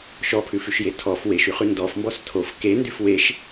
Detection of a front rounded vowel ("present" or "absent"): present